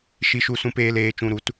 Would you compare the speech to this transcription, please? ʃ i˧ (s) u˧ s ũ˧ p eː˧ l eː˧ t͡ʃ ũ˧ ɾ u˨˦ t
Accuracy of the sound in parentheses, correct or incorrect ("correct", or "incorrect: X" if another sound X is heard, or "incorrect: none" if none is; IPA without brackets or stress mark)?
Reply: incorrect: ʃ